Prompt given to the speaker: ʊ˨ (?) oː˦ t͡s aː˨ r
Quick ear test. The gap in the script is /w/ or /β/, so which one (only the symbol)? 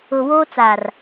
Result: w